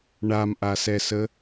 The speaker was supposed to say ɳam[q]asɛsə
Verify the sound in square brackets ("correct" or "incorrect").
incorrect